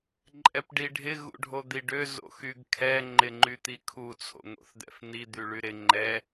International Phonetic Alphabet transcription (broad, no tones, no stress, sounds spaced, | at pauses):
ǃʼ ɛ p ɖ i ɖʱ ɪ ɣ ṵ ɖʱ o d̪ i ɖ ø z o̰ x y ɡ kʰ ɛ ŋ͡ǃ ɪ ŋ͡ǃ y t̪ i kʰ u t͡sʰ o̰ ŋ o̰ θ d̪ ɛ̰ f n̪ i d̪ y ɭ y ɾ ɪ ŋ͡ǃ ɛ